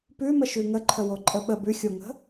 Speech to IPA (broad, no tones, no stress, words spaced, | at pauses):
pʉməʃʉ ŋəǃʰəwoǃʼə ɓə bʉxʲoŋə̤